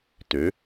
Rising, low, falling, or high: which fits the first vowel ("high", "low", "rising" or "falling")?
rising